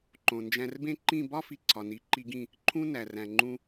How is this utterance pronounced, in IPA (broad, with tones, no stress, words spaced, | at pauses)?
ǃõ˨nd͡ʒæ̃˧rbẽ˦ ǃĩ˦˨bɒ˦fi˨ ǀʰɒ˨ni˨˦ǃi˧ɡĩ˦˨ | ǃʰũ˦næ˨ræ̃˨ ŋ͡ǃũ˧